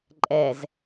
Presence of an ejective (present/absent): present